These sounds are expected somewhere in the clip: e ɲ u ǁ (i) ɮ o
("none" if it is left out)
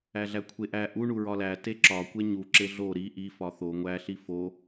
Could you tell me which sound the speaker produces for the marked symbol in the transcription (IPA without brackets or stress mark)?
e